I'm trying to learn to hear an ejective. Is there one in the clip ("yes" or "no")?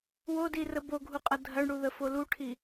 yes